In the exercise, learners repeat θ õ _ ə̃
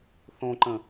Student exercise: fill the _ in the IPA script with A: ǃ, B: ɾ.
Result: A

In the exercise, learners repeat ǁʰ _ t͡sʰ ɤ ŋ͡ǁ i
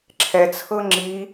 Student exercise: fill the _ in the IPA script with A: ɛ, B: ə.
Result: A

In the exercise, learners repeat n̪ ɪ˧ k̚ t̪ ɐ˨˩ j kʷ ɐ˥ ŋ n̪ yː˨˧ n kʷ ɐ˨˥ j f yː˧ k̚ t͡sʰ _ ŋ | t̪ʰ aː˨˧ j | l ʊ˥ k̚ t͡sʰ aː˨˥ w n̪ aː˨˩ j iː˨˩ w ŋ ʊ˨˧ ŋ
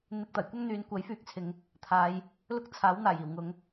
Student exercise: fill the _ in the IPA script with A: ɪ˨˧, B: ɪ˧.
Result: A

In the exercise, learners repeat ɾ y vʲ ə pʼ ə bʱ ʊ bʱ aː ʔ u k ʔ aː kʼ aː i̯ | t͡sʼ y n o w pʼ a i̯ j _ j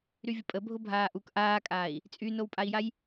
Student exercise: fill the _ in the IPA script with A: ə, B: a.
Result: B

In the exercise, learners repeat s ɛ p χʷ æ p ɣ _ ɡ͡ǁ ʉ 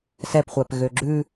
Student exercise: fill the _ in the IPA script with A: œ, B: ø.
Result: B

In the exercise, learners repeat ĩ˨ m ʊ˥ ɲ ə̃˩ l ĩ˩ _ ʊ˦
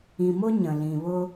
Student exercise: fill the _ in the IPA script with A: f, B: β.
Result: B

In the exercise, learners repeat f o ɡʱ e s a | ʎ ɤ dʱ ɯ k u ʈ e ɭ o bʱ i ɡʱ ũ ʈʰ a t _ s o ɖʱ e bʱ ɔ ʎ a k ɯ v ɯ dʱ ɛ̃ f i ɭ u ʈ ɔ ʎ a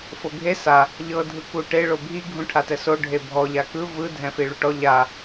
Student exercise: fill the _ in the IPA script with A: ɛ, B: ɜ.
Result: A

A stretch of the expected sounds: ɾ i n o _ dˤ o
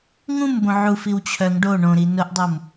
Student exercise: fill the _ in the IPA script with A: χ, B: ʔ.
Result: B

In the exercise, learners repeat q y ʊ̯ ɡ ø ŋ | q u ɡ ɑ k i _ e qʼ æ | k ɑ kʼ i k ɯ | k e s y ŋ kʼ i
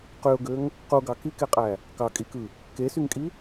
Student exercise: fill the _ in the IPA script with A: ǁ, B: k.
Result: B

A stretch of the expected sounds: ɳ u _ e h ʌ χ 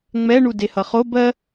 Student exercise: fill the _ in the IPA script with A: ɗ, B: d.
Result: B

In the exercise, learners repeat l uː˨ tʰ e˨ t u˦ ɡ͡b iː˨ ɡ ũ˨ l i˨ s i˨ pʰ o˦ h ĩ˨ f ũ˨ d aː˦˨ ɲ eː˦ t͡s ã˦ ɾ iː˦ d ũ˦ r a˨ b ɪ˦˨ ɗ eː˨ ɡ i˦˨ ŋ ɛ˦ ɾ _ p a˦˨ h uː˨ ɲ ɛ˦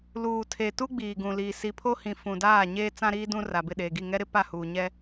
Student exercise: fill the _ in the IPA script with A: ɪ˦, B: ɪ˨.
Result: A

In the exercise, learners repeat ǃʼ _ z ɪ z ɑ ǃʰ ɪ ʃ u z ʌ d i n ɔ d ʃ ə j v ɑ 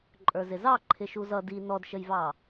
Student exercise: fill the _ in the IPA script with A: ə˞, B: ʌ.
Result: A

